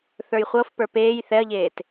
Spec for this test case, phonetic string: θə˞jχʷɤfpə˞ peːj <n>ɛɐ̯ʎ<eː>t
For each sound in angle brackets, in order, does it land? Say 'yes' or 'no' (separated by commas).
no, yes